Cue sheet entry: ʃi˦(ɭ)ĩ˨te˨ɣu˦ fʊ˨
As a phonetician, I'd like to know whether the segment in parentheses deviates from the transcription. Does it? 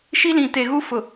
yes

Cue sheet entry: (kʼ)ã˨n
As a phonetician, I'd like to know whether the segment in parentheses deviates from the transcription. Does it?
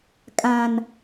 no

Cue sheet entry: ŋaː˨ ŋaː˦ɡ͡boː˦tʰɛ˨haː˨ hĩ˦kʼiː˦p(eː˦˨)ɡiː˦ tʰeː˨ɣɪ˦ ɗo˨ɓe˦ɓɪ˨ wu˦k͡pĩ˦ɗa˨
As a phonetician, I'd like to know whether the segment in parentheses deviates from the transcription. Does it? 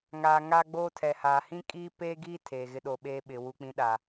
yes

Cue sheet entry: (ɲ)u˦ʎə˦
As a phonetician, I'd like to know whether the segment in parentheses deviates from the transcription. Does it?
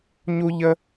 no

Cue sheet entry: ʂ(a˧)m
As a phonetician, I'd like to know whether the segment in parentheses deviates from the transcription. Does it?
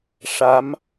yes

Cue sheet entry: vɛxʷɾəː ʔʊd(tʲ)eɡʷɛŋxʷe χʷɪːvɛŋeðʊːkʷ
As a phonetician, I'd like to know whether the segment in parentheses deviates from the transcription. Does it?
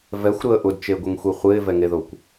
yes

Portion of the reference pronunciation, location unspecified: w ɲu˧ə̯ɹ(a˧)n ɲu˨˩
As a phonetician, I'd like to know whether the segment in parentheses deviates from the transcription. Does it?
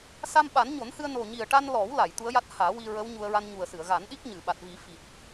no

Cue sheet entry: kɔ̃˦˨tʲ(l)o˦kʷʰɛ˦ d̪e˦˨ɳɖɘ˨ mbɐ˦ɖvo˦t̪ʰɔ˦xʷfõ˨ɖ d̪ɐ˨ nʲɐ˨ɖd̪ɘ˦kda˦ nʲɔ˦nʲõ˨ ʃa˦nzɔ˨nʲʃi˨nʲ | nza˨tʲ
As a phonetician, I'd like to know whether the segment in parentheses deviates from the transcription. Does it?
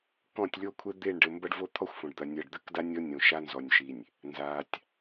yes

